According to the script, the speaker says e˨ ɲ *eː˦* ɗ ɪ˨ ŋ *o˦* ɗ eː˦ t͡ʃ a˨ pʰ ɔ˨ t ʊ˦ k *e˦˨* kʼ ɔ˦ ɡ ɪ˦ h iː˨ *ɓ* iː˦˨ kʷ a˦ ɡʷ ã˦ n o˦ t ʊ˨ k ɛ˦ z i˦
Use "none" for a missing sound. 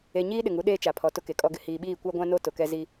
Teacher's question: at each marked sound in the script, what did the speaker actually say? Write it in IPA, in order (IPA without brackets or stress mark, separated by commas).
iː˦, u˦, e˨, ɓ